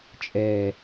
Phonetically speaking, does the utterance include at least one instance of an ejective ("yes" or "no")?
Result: yes